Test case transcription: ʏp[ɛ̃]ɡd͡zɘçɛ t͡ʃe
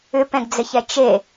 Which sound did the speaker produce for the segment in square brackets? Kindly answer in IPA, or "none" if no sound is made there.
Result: ɛ̃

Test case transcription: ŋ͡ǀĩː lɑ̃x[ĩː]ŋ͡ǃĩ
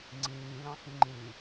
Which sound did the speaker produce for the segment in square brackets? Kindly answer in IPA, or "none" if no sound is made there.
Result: ĩ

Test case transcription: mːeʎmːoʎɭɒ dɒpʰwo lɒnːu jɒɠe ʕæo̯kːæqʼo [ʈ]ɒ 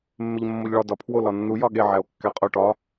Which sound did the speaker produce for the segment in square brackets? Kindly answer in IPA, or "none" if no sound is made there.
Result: ʈ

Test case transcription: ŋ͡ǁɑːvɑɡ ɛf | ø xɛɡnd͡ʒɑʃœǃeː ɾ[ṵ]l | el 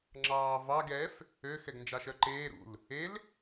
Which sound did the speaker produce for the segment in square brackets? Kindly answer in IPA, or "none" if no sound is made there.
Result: ṵ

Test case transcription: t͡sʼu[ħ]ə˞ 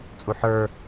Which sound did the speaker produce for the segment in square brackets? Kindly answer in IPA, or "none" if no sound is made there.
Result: ħ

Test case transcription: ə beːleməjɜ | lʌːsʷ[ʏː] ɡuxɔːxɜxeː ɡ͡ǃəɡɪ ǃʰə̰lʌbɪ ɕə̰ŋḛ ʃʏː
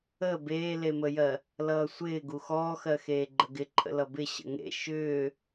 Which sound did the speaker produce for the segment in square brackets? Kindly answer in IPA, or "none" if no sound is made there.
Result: ɪː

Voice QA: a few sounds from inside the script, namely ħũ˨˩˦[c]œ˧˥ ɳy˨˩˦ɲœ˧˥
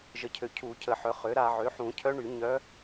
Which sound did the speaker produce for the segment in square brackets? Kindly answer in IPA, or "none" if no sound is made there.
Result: cʰ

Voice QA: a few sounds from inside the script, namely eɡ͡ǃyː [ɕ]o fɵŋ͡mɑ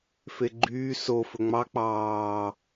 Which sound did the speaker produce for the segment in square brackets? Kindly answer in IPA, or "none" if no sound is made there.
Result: s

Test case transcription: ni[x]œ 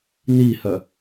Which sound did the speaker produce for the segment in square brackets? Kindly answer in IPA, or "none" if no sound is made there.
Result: h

